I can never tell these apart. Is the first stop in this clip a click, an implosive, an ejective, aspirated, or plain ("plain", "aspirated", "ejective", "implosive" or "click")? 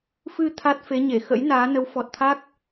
aspirated